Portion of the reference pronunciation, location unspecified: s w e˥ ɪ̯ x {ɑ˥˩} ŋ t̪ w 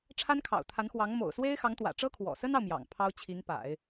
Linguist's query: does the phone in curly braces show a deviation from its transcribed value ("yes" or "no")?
yes